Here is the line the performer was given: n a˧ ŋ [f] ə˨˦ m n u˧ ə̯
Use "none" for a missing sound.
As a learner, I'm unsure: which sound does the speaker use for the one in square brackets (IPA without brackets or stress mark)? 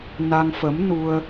f